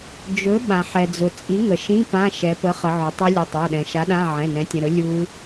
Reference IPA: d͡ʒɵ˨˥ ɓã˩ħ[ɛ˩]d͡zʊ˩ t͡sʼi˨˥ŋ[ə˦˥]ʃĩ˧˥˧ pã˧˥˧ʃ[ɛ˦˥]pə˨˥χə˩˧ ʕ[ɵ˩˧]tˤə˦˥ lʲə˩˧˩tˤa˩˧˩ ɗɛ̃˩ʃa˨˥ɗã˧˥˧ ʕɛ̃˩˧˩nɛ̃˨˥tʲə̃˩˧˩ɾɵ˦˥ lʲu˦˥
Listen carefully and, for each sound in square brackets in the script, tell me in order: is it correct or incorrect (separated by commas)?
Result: correct, incorrect, incorrect, incorrect